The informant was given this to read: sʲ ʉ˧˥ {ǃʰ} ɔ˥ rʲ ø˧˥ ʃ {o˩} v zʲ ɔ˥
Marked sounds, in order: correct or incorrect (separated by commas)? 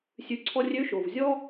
incorrect, correct